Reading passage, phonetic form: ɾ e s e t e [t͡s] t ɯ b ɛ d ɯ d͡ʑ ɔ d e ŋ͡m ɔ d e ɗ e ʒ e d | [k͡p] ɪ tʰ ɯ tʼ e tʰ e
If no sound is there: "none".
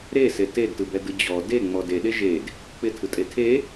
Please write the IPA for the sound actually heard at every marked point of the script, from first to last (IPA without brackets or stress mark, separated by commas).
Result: d, k͡p